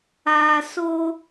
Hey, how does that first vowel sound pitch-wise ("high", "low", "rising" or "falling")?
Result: low